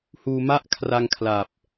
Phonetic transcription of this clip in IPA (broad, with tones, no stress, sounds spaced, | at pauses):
h uː˧ m a˥˩ ʔ kʰ r a˧ ŋ kʰ l a˨˩ p̚